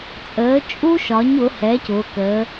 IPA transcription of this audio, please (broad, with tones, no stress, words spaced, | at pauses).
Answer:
t͡sʼəː˩˥t͡ʃʼu˥ʃɒ˩˥ɲ ʊ˩˥ hɛ˩˥cʊː˩˧kəː˩˧